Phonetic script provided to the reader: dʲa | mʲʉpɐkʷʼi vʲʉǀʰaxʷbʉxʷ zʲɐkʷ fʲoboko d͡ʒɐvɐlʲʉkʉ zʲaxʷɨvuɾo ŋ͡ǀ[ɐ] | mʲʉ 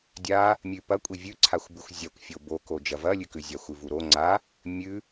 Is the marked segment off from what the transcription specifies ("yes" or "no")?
yes